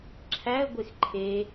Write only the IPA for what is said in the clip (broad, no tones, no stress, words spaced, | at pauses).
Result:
ǁʰæə̯ɡʷex ǃʰe